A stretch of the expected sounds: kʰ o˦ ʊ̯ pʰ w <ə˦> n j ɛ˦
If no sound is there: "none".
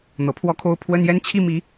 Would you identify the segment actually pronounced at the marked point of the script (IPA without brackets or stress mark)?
ə˦